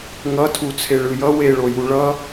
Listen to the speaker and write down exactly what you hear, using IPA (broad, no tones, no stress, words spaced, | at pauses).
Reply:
ŋʌtʰu t͡sʰeɭɯjʌ weɭoju ɭʌ